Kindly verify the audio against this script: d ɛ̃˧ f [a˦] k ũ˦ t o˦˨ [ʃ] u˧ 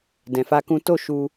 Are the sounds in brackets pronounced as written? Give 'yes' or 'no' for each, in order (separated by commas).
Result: yes, yes